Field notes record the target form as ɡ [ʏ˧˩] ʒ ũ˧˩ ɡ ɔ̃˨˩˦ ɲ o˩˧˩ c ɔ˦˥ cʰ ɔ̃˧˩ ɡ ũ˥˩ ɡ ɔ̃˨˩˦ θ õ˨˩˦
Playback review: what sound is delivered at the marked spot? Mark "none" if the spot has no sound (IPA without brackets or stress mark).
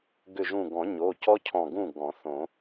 ʏ˧˩